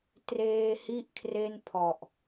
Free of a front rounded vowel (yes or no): yes